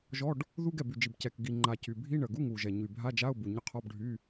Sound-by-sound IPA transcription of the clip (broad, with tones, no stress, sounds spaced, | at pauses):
ʒ ɔ˧˥˧ ɖ | ð u˧˥˧ ɡ ɛ˨˩ b y˨˩ d͡ʒ i˨˩ b c ɛ˨˩ k ɡ i˨˩ ŋ͡ǃ a˨˩ c y˨˩ bʱ i˧˥˧ ɳ ə˨˩ ɡ u˧˥˧ ŋ u˨˩ ʒ ɛ˨˩ ɲ y˨˩ bʱ a˧˥˧ d͡ʒ a˧˥˧ ʊ̯ b u˨˩ ɲ ə˧˥˧ qʰ ɔ˧˥˧ b ɖʱ y˧˥˧